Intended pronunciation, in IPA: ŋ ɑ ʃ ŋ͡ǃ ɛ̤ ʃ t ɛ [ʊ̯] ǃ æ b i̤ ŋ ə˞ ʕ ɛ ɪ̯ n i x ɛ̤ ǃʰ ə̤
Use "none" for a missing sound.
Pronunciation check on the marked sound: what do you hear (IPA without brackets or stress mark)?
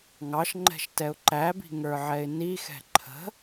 ʊ̯